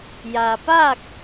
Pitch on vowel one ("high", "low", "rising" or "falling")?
low